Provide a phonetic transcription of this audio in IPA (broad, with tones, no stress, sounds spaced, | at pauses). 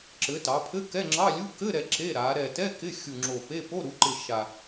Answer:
ǁ ɘ˩˧ t ɑ˩˧ pʰ ɘ˧˥˧ k ɛ˧˥˧ ŋ͡ǁ ɑ˧˥˧ lʲ u˧˥˧ k ɘ˧˥˧ ɾ ɛ˨˩ ǁ e˧˥˧ ɾ a˩˧ ɾ ɛ˨˩ t ɛ˧˥˧ k ɪ˧˥˧ xʲ u˨˩ ŋ͡ǁ o˨˩ p e˧˥˧ p o˧˥˧ ɾ u˩˧ ǃ ɪ˨˩ ʃ a˨˩